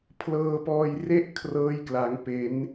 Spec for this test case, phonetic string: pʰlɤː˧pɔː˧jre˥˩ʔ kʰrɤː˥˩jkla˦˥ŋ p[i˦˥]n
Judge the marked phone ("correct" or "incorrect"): incorrect